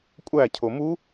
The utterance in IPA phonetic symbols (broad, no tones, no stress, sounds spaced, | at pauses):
kʷʼ æ cʰ o m u